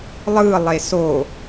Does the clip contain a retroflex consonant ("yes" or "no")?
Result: no